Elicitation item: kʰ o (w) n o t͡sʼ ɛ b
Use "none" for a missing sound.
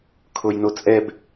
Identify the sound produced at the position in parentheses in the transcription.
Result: j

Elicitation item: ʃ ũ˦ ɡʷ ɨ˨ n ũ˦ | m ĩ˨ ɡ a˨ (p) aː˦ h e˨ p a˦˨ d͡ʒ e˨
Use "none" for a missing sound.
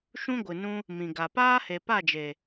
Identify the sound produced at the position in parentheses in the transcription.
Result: p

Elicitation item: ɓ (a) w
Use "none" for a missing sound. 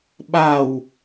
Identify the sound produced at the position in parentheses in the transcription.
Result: a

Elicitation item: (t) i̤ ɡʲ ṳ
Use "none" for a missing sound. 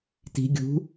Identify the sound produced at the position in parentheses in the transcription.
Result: t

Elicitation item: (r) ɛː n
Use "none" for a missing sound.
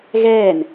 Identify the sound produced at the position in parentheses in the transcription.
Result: ɣ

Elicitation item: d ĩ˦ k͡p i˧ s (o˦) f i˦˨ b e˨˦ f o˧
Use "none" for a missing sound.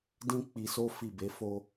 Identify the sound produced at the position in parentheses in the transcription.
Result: o˦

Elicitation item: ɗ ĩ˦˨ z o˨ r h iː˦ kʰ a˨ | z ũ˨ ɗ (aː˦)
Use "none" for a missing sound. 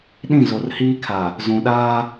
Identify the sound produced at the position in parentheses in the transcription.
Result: aː˦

